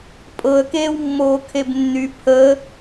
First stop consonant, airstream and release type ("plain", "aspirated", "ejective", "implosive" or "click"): ejective